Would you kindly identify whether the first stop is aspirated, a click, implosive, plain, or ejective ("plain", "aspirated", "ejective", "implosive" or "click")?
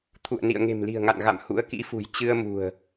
aspirated